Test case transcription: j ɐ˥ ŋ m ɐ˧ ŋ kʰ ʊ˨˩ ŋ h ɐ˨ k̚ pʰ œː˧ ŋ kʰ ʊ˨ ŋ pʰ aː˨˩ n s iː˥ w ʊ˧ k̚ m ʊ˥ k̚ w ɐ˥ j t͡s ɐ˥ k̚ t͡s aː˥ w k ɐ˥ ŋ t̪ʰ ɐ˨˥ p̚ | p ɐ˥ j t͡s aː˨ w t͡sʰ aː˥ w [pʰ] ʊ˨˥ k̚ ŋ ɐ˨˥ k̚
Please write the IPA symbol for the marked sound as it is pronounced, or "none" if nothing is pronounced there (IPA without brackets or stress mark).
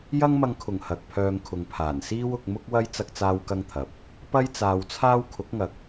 kʰ